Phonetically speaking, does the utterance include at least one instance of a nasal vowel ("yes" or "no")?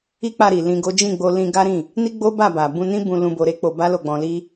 yes